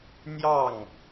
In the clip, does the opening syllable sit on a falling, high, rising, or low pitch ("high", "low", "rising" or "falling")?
falling